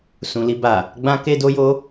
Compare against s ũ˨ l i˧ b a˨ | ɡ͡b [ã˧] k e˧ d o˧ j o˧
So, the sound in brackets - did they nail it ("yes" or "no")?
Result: yes